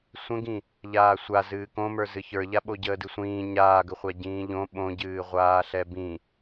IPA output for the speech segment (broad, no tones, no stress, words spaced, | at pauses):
sʷə̃ɡĩ | ʎaːsʷa zɨːkõmə˞ zɨçə˞ʎa ɓoɟəːdɨsʷĩː ɲaːɡəχʷa ɟĩːʎõ ɓõɟɨː ʁʷaːɬɛbĩ